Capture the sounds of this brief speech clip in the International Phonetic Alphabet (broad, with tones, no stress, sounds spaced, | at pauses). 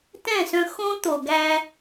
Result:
t ɛ̃˦˨ s œ̃˧ x õ˦ t̪ o˨ ɡ æ˧